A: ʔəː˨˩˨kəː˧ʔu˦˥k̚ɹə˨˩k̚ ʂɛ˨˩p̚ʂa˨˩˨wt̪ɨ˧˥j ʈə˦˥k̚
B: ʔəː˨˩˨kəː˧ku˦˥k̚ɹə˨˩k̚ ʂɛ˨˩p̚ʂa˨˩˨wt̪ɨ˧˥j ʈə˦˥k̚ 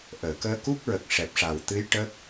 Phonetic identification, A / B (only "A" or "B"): B